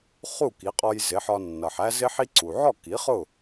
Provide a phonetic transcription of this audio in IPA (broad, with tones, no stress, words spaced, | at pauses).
χu˥˩ki˩˥qʼɔ˧j zɪ˩˥ħɒ˧nːʌ˩ħæ˥ zɪ˥ħi˥ ǀu˩ ʕɔ˥˩ki˩˥ χʊ˥˩